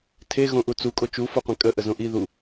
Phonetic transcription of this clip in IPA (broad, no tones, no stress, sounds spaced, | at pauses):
tʰ e ɣ õ ʔ u t͡s u kʼ o t͡ʃ u f o qʷ ẽ kʼ ə ʔ ə z õ ʔ i ð u